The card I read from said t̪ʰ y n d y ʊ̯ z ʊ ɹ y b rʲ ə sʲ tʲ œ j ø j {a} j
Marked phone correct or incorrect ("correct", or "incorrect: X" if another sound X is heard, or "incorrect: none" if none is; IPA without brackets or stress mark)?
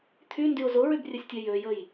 incorrect: ə